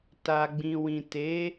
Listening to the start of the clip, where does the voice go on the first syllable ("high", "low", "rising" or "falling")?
low